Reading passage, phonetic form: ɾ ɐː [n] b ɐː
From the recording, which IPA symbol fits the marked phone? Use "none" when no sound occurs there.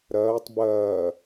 tˤ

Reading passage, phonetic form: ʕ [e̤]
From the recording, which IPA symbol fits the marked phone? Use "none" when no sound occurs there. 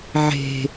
e̤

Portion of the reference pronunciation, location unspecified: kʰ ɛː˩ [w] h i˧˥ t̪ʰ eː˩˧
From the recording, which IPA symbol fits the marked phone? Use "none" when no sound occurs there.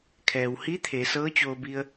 w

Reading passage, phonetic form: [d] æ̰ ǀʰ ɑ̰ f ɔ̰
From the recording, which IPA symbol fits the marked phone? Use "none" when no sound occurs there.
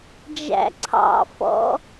d͡ʒ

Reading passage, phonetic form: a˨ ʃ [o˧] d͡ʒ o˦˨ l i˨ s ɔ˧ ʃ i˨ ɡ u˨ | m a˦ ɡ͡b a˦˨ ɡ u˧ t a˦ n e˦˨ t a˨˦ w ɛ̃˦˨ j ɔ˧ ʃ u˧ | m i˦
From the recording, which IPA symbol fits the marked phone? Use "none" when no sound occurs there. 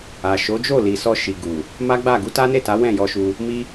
o˨˦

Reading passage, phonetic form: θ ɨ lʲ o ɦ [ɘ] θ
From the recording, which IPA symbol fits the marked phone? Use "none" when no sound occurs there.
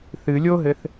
ɘ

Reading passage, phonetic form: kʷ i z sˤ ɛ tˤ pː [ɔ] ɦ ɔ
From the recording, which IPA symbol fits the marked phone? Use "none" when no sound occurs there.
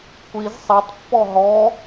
ɔ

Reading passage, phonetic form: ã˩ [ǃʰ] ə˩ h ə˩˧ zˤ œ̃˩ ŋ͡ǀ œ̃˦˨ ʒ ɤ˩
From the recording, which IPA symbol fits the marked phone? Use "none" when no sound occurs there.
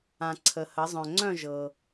ǀʰ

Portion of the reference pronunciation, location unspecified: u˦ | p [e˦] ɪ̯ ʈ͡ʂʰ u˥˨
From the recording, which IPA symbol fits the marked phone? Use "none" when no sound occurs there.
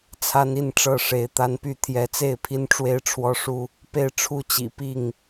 e˥˨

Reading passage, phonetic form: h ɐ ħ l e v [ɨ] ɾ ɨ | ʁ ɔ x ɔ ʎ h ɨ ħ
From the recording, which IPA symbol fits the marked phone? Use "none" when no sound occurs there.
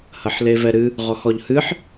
ɛ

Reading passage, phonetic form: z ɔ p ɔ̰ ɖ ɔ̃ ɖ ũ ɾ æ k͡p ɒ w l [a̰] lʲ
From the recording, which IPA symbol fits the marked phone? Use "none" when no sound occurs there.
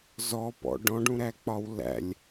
æ̰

